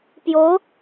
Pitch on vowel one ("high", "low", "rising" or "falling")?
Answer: rising